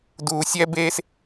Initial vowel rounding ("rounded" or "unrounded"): rounded